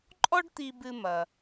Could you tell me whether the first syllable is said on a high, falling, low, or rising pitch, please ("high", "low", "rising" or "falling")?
high